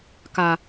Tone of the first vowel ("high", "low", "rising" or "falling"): low